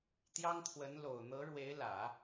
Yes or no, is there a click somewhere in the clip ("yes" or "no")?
no